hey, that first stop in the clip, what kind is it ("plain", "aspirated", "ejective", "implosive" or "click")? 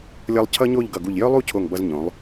aspirated